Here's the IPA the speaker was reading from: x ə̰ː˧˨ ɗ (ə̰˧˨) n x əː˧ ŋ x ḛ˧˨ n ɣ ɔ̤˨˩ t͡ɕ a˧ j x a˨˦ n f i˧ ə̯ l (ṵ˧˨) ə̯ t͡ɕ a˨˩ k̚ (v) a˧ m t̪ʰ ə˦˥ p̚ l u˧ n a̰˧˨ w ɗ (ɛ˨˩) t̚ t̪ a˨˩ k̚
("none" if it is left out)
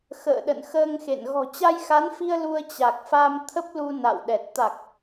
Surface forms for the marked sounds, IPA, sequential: ə̰˧˨, u˧, f, ɛ˨˩

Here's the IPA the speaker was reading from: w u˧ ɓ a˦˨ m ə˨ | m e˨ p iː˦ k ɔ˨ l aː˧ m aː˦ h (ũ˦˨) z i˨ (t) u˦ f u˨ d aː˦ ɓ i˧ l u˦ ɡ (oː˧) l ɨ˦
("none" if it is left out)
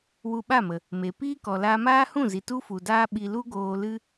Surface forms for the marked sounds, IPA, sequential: ũ˦˨, t, oː˧

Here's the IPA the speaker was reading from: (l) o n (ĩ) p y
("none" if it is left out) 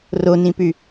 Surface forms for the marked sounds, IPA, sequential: r, ĩ

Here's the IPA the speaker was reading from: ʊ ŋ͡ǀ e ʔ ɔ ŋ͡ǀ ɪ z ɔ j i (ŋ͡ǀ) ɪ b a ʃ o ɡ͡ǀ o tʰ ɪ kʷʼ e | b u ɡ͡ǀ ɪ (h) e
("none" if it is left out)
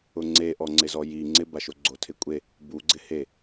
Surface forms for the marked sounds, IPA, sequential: ŋ͡ǀ, h

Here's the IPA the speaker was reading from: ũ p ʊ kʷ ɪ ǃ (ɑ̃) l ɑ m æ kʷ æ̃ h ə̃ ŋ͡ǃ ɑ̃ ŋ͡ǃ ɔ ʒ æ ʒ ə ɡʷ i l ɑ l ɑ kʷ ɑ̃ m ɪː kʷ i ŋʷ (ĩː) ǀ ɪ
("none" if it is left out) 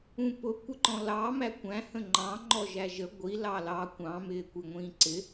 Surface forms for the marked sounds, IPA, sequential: ɔ̃, ĩː

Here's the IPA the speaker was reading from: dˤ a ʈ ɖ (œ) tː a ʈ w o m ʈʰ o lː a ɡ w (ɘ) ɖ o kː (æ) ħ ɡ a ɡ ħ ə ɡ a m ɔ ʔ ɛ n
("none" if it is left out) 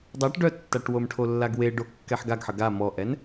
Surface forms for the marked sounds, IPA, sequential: œ, e, ɛ

